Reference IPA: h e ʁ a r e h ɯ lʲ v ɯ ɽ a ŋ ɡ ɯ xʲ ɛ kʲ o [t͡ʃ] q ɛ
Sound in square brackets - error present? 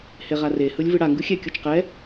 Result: no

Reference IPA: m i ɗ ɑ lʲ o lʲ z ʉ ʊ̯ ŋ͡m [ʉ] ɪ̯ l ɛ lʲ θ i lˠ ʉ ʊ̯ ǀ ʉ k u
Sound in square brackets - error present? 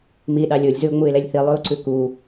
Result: yes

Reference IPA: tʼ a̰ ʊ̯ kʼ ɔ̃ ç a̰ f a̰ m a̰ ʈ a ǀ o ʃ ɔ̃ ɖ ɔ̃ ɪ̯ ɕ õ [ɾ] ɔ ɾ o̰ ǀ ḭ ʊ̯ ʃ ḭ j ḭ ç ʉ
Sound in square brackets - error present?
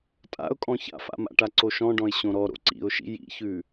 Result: no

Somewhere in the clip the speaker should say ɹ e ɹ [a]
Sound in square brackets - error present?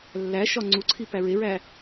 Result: yes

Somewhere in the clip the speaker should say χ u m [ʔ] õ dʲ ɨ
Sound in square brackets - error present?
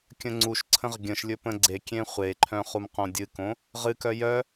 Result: yes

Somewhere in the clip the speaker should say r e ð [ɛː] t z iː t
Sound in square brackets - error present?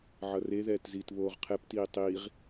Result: no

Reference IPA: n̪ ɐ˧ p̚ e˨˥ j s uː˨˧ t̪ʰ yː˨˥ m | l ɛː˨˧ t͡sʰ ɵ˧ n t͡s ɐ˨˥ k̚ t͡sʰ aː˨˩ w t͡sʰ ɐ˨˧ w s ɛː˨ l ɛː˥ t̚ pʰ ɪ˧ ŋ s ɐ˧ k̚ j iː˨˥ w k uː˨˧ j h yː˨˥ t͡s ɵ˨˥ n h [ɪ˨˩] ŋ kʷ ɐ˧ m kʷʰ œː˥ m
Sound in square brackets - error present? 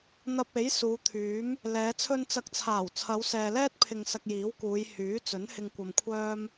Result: yes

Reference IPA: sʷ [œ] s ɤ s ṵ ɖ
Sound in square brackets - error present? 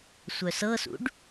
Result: no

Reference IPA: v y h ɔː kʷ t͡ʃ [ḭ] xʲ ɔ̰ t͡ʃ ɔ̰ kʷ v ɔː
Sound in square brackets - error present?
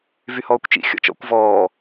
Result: no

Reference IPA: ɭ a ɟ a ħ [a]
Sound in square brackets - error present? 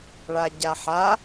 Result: no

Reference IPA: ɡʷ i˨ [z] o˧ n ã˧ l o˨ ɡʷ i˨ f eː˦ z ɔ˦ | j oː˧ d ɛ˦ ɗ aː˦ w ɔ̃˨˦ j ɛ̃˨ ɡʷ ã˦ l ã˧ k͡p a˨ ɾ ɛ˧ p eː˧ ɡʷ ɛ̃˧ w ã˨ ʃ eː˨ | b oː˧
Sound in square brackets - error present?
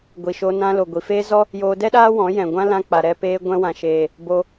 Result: yes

